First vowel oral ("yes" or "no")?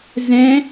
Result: no